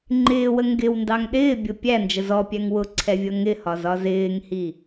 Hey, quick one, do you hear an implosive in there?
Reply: yes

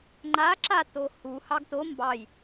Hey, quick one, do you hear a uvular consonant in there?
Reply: no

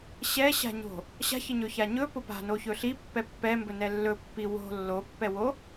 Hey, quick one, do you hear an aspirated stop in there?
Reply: no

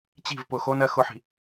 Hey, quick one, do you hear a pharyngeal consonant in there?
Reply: yes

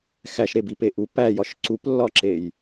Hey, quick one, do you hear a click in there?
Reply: yes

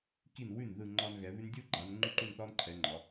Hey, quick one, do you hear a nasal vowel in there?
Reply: no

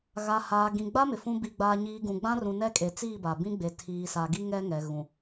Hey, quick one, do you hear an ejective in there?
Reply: yes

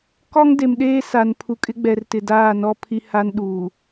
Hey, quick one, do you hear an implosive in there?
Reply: yes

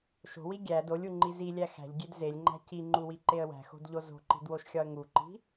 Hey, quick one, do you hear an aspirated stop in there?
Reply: no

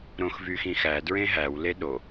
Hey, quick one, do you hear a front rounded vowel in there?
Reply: yes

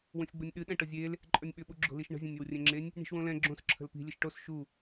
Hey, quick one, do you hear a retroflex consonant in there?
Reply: yes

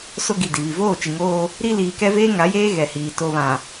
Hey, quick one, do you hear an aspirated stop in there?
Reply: no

